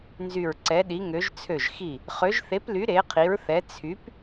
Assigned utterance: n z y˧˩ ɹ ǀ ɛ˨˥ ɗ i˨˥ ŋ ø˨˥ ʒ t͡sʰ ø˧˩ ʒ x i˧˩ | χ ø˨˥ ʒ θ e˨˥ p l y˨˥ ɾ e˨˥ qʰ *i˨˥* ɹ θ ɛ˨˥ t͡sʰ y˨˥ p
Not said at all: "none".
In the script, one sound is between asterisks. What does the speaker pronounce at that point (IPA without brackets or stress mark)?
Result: i˨˥